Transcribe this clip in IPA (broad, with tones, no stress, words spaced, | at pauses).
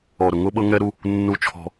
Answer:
ɔ˨ɾʊ˨ŋʊ˦ɓɤ˦ ŋɛ˦ɾu˦ | nːu˦t͡ʃʰɔ̤˦